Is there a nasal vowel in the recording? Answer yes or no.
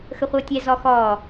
no